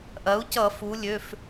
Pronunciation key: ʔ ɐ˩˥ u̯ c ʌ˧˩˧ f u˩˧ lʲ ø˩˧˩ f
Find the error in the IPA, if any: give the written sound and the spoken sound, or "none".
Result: none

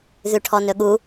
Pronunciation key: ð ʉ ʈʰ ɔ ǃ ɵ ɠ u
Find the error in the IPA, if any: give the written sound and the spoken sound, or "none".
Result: ǃ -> n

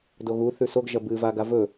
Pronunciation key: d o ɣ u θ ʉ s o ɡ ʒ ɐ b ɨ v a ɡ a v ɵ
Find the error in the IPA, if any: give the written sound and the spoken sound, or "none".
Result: none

